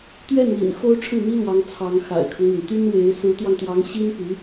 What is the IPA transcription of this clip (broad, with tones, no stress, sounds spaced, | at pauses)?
t̪ ɥ ɛ˥˩ n l ḭ˨˩ n x o˥ ʊ̯ ʈ͡ʂʰ ɻ̩˥˩ n̪ i˥ l w ɑ˧˥ ŋ t͡sʰ ɑ˧˥ ŋ x a̰˨˩ ɪ̯ kʰ ɤ˦ ŋ n̪ i˩ n t̪ y˥ n w e˧˥ ɪ̯ s ɹ̩˧˥ t̪ w ɑ˧ ŋ t̪ w ɑ˧˥ ŋ ɕ i˥ n p y˧˥